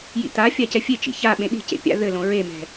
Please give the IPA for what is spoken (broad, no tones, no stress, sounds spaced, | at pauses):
j ḭ t̪ a fʲ a c ɛ fʲ e t͡ʃ ḭ ç a ɓ ẽ ɗ i̤ c ḛ pʲ a̰ ð ɘ l õ ɹ e m ɛ̤